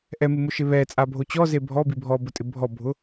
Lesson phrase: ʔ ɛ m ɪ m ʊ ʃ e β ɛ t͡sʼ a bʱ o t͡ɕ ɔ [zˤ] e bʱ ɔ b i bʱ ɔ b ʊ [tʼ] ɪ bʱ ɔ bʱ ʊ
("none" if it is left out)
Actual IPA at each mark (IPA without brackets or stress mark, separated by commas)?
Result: z, tʼ